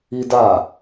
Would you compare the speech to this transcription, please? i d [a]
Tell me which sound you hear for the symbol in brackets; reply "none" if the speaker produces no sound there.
a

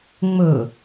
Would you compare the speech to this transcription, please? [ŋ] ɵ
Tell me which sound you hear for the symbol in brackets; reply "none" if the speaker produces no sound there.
ŋ͡m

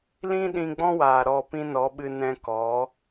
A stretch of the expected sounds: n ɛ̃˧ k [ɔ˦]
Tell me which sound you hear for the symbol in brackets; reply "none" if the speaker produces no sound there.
ɔ˨˦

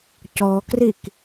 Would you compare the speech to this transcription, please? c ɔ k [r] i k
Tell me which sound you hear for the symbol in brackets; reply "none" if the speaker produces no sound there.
r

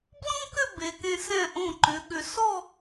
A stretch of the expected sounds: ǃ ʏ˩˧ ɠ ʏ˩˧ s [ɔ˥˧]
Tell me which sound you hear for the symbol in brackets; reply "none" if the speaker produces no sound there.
ɔ˥˧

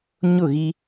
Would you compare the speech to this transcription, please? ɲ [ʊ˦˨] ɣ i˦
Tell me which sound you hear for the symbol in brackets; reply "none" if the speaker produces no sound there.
ʊ˦˨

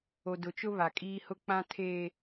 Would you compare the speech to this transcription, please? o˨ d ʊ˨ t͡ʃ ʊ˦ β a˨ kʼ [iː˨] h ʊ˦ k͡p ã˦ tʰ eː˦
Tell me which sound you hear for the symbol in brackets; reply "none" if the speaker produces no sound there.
iː˦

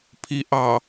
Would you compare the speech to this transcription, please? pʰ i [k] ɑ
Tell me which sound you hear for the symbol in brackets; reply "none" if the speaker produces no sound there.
ʔ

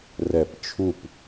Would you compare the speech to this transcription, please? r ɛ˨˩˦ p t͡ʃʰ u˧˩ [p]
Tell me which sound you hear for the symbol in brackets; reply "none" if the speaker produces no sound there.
p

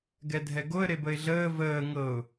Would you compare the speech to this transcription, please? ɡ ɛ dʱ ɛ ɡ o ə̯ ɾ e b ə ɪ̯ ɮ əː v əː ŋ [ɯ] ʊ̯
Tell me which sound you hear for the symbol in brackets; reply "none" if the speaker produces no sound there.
ɤ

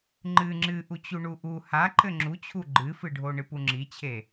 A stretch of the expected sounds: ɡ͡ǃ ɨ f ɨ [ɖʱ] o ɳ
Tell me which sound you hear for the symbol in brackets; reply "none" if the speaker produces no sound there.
ɖʱ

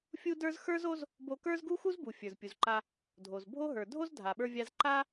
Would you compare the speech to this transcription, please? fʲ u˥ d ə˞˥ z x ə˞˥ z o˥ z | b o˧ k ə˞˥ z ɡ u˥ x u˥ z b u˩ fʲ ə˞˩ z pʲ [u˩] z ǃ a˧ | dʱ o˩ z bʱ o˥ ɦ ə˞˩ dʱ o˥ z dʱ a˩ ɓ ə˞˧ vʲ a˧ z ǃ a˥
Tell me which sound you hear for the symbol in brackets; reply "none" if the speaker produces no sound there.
u˩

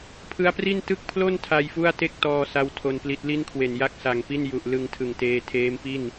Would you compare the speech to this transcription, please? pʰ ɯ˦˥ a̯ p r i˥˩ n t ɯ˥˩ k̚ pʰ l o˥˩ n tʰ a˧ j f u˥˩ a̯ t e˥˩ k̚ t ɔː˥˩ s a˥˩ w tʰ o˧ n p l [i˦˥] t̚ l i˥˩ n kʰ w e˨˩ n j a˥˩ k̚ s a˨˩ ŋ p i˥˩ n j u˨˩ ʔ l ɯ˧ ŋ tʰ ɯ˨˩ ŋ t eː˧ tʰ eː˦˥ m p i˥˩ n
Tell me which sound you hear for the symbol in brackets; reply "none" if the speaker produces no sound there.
i˦˥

